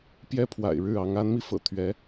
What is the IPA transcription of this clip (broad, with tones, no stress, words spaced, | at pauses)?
pjɛ˥pʰwa̰˨˩ɪ̯ɻɻ̩˥˩ɑ˧˥ŋ a˧˥nmi˧fɤ̰˨˩ t̪ʰɥɛ˧˥